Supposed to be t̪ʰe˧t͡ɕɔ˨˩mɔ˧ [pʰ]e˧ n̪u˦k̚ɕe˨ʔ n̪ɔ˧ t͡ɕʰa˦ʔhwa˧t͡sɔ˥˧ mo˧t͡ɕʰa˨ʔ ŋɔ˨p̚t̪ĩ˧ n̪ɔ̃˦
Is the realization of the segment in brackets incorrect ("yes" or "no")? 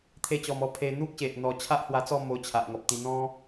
no